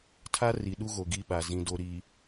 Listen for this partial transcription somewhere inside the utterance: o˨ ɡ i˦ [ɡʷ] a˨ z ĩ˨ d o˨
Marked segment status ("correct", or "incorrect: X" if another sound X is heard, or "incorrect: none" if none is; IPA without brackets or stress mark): incorrect: ɓ